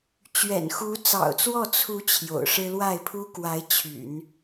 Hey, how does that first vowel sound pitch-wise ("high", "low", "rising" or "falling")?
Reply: low